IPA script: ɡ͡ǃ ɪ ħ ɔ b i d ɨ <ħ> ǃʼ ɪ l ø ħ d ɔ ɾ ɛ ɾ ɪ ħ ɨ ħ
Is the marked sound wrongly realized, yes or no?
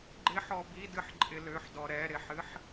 no